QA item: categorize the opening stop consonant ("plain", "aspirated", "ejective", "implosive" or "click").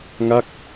plain